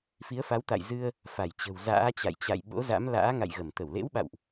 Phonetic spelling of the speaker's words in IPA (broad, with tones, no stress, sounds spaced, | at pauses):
f i˨˦ ə̯ f a˨˦ w t̪ a̰˧˨ j z ɨ˧ ə̯ | f a˧˩ j t͡ɕ ə̤˨˩ w z a̰ː˧˥ t͡ɕ a̰˧˨ j t͡ɕ a̰˧˨ j ɓ o̰˧˥ z a̰˧˥ m l a̰ː˧˥ ŋ a̰˧˨ j ɣ ə˧˩ m t̪ ə˧˩ w l ḛ˧˥ w ɓ a̰˧˨ w ʔ